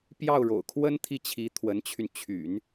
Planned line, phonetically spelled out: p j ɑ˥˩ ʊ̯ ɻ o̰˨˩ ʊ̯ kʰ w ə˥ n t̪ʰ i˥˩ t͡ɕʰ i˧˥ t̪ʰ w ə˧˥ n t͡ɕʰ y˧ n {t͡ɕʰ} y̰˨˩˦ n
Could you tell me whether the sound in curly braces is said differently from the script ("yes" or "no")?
no